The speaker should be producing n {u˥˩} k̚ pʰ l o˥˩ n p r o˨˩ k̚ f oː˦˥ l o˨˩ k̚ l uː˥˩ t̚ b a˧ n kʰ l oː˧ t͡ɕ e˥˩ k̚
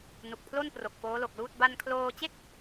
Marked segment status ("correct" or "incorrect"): incorrect